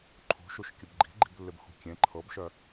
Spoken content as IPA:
ǃʰ ṳ ʃ u ʃ kʲ ə b ɡ͡ǃ i̤ ɡ͡ǃ i̤ b lː ɪ b x ṳ kʲ ẽ ǃʰ ɤ b ʃ œ

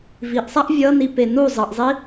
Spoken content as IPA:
v i ʔ sˤ a ʔ vʲ ʌ n i p e n u zˤ ʌ ʔ zˤ i

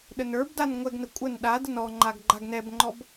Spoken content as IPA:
ɗ ə n ə˞ b d a n ŋʷ ɛ ɡ n ə kʷʼ ə n ɗ a d ə n ɔ ŋ͡ǃ a ɡ ɡ͡ǃ a ɡ n ɛ b ŋ͡ǃ ɔ b

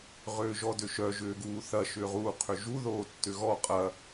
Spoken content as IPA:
ʁ ʏː ʒ ɔ d ʏ ʃ œ ʒ ʏː ɡ uː θ ɐ ʃ ʏː ʁ uː qʰ ʏ ʒ u ð oː tː ʏ ɣ ɔ qʼ ɐ

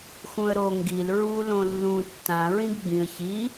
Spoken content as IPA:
x ũ ə̯ ɾ o ŋ ɡ i l ɹ u l õ lː ũ tː ã ɹ ĩ ɡ ɡ͡b ĩ ə̯ ç i

